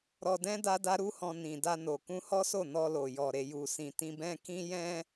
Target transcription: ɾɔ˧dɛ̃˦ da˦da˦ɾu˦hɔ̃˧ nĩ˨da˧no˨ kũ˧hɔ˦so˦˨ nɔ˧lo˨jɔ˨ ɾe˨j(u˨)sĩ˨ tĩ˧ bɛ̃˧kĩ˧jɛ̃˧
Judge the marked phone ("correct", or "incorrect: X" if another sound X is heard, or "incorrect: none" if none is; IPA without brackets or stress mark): correct